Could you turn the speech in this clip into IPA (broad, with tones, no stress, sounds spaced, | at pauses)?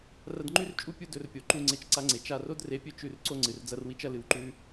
r ɐ˧ d ŋ͡ǃ ʉ˥ r t͡ʃʼ u˥ pʲ u˧ d ɵ˧ r pʲ o˩ ǃ u˧ ŋ͡ǀ e˧ t͡ʃ ǀ a˧ ŋ͡ǀ e˩ t͡ʃ a˧ r o˥ d r e˧ pʲ ɵ˥ t͡ʃ ʉ˧ r ǀ o˥ ŋ͡ǀ ɨ˩ r d͡z ɐ˥ r w i˥ t͡ʃ ɐ˥ l ɨ˧ w ǃ ʉ˥